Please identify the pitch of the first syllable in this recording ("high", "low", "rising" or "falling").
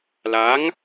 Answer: rising